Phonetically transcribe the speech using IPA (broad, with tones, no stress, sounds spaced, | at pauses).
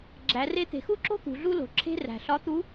ɡ͡ǁ æ˩˧ r e˧˥ t̪ e̤˩ x u˥ ǁ o̤˥ t̪ ṳ˩˧ ɮ u˥ l o̤˩ ǁʰ e̤˥ r æ̤˩ ɬ ɒ˧˥ t̪ u˧˥